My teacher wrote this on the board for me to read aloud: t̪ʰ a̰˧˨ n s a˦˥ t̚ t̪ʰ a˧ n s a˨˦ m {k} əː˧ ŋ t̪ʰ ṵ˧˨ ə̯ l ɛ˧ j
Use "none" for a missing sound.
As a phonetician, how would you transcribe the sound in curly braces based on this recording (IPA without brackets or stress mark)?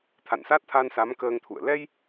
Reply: k